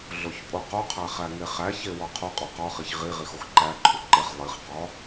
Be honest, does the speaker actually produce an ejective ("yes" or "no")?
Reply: yes